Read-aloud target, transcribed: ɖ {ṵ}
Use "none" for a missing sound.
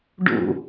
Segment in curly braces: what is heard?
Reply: ṵ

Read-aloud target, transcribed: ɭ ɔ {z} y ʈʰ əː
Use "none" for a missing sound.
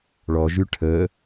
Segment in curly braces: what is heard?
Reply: ʒ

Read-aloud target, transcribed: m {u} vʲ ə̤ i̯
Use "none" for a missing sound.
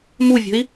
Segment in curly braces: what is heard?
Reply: u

